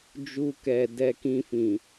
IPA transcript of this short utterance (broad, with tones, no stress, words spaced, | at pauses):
d͡ʒu˧kɛ˨ dɛ˧ kĩ˧fĩ˨